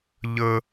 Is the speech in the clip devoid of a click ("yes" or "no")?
yes